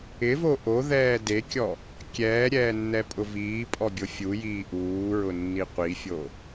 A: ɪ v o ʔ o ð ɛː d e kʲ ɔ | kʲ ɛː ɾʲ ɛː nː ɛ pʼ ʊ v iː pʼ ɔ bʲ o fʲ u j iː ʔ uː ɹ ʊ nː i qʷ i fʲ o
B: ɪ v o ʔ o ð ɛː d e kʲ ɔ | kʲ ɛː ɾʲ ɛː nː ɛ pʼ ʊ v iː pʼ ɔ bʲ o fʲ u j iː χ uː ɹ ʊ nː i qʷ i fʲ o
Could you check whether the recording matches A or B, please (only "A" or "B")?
A